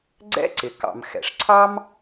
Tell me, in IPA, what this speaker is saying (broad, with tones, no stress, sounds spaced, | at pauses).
ɡ͡ǀ ɛ̰˥ ǀ ɪ˩ k ɑ̰˩ m x ɛ̰˩ ʂ ǀʰ ɑ˥ m